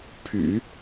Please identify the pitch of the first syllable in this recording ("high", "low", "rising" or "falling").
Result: low